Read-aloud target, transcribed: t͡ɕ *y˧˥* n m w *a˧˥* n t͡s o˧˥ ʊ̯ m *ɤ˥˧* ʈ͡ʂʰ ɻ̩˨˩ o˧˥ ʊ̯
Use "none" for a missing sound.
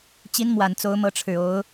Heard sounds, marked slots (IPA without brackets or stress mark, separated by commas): i˧˥, a˨˩, ɤ˧˥